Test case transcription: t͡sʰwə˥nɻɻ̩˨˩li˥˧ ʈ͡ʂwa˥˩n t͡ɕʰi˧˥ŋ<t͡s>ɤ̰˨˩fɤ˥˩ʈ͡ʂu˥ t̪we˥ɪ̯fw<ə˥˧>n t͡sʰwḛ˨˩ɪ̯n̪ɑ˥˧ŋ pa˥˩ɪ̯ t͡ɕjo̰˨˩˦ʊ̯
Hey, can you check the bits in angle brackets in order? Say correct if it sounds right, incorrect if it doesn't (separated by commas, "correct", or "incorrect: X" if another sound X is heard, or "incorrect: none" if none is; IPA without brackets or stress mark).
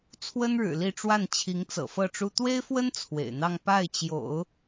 correct, incorrect: ə˥